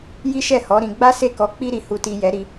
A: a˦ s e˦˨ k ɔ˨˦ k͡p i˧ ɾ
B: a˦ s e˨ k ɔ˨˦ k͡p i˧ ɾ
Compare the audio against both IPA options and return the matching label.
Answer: A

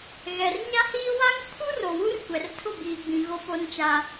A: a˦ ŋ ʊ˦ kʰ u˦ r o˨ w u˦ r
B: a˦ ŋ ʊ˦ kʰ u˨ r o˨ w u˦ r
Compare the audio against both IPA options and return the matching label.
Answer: A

